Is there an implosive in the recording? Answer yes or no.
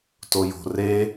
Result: no